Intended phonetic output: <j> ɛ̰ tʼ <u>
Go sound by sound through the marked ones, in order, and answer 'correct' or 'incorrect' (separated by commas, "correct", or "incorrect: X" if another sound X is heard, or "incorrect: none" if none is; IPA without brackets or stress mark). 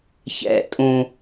incorrect: ç, incorrect: ũ